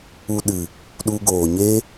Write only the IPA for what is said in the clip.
u˧ ɗ ɨ˨ | ɗ u˧ ɡ oː˨ ɲ e˦

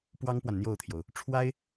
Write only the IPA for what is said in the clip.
p w ɑ˥ ŋ p w a˨ n n̪ j o˥˩ ʊ̯ t̪ʰ j o˩ ʊ̯ | ʈ͡ʂʰ w a˥ ɪ̯

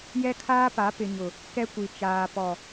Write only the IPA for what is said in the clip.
j ɛ˦ kʰ aː˦ p a˨˦ p ɪ˨ ɲ ʊ˨ | k ɛ˦ kʷ i˨ t͡ʃ aː˨ p ɔ˨

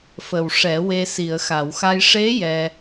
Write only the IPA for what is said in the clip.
f ə˨˩ w ʂ ɛ˨˩˦ w e˧ s i˨˩˨ ə̯ x a˨˩˨ w x a˧ j ʂ e˧˥ j ɛ˧

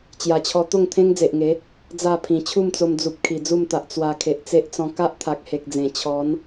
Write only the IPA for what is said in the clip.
t͡ɕ j a˨˩ t͡ɕʰ ɔ˧ t̪ o˥˧ ŋ t̪ʰ ẽ˦ ŋ d͡z e˨ ʔ ŋ e˨˦ | d͡z a˥˧ pʰ ĩ˨˩ t͡ɕʰ u˥˧ m t͡s o˧ m d͡z u˨ p̚ kʰ i˨˩ d͡z u˥˧ m t̪ a˨ ʔ t͡s w a˨˩ kʰ e˨ ʔ t͡s e˦ ʔ t͡s ɔ̃˧ k a˦ ʔ t̪ʰ a˨ k̚ h e˨ k̚ d͡z ẽ˨˩ t͡ɕʰ ɔ˨˦ n

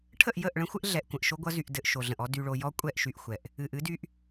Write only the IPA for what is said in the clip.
ʈʰ ə˦˨ ʔ j ə˦˨ ʔ ɭ ə̃˦ xʷ ɘ˦ ʔ ɮ ɛ˨ ʔ kʷ ə̃˨ ʔ ʃ o˦ ɡʷ ʌ˦ z y˨ ʔ d ɘ˨ ʔ ʃ o˨ ɮ ə̃˨ ʔ ɔ˦ d y˨ ɭ o˨ j ɔ˦ kʷʼ ɛ˦˨ ʔ ʃ y˨ ʔ xʷ ɛ˨ ʔ | ɨ˨ ʔ ɨ˦ d y˦ ʔ

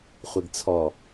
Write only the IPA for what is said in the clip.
χʷ i ɡ t͡sʰ ɔ

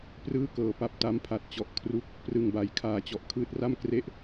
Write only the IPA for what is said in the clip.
p r ɯː˥˩ k ɤː˨˩ p a˦˥ p̚ t a˦˥ m pʰ a˨˩ t̚ t͡ɕ ɔ˨˩ ʔ kʰ r u˦˥ k̚ | p r ɯ˨˩ ŋ b a˨˩ j kʰ aː˧ t͡ɕ ɔ˨˩ ʔ kʰ ɯː˦˥ t̚ r a˥˩ m k r e˥˩ ʔ

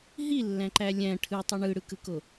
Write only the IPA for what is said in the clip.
ɦ i lː æ̃ ǃ æ lʲ æ̃ ʈʰ ɯ tˤ ɯ ɳ ɯ ɽ ɯ k ɯ k o

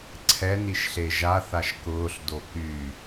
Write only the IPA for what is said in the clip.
ǀʰ ɛ n i ʃ ɬ e ʒ a θ a ʃ k ʊː ɬ d o k y

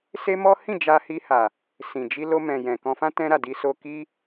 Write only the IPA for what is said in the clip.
s e˦ m ɔ˦ h ĩ˦˨ d͡ʒ a˧ h i˧ h a˨ | s ĩ˨ d͡ʒ i˧ l o˧ m ɛ̃˨ j ɛ̃˨ k ɔ̃˧ f ã˦ t ɛ̃˧ ɾ a˨ d i˧ s o˧ k i˦

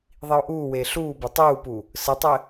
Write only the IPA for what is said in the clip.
ðˤ i o̯ ʔ uː w eː ɬ uː b ɘ tˤ uː p u | s ɘ tˤ ɘ

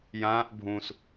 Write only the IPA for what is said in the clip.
j ãː ʔ bʱ ũ s

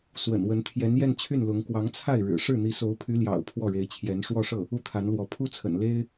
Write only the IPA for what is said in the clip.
s w ə̰˨˩ n w ə˧˥ n t̪ʰ j ɛ˧˥ n j ɛ˥˧ n t͡ɕʰ y˥˩ n l ʊ˧˥ ŋ k w ɑ˧˥ ŋ t͡sʰ a˥˩ ɪ̯ ɻ ɻ̩˨˩ ʂ ɻ̩˥˩ n̪ i˧˥ s o˧˥ ʊ̯ pʰ y˧˥ l j ɑ̰˨˩ ʊ̯ pʰ w ɔ˥˩ ɻ e˧˥ ɪ̯ t͡ɕʰ j ɛ˧˥ n ʂ w ɔ˥˧ ʂ ɤ˥˩ | u˥˩ t̪ʰ a˧˥ n l w ɔ˧˥ pʰ u˥ t͡sʰ ə̰˨˩ n l e˥ ɪ̯

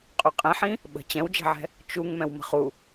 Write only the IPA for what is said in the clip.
qʼ y qʼ ẽ ħ ĩ | ɓ ə̤ t͡ɕ ɛ̃ w d͡ʒ ɛ̤ ʕ ɛ̤ | t͡ʃ u ŋ m ɛ̃ w m ə̤ χ u

